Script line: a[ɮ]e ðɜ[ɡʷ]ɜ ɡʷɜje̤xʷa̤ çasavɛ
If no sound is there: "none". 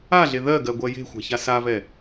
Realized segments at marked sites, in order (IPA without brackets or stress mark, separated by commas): ɮ, ɡ